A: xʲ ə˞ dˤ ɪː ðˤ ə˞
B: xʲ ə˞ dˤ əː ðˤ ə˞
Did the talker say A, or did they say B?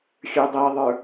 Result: B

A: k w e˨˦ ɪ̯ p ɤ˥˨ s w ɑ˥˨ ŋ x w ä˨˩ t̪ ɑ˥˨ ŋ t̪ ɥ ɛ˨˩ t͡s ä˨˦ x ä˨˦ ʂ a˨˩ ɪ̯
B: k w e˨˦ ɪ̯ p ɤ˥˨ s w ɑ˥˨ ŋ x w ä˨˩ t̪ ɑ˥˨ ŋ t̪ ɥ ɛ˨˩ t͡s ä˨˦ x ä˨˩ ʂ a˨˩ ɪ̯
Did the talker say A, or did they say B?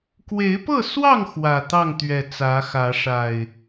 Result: A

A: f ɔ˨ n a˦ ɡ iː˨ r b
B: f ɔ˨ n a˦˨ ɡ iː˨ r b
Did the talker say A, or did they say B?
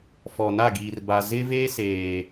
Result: B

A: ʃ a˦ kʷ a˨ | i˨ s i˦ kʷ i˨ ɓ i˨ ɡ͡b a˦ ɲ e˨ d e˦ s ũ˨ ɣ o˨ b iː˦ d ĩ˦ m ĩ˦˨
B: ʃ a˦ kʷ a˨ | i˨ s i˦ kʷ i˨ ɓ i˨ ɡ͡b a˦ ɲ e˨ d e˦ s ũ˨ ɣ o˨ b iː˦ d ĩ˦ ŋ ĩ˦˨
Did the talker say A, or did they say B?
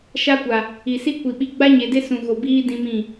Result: A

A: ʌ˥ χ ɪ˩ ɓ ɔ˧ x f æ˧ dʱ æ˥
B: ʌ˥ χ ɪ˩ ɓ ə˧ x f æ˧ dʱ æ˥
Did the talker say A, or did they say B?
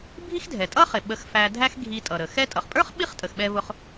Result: B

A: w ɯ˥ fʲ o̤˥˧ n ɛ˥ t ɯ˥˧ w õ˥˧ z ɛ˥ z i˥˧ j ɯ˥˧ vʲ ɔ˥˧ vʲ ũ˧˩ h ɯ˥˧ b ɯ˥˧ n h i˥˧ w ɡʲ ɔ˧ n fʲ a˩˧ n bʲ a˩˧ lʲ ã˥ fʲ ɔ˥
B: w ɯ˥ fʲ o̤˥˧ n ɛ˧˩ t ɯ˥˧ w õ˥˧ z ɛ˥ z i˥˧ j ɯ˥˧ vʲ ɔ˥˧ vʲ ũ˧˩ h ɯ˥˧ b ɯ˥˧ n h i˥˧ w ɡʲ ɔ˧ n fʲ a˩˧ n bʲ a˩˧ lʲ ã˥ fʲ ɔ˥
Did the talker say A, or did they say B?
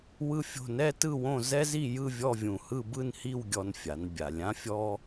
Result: A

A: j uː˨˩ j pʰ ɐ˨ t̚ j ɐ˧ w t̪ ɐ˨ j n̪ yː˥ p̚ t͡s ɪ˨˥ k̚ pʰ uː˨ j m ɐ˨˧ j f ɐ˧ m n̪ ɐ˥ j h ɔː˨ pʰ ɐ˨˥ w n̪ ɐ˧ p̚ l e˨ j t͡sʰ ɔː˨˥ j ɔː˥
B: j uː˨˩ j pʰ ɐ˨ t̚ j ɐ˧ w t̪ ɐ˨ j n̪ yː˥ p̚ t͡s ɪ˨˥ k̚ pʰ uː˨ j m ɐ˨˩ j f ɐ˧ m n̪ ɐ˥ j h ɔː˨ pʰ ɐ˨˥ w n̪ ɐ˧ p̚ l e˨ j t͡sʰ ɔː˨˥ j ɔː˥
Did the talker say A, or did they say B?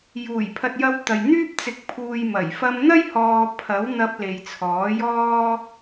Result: B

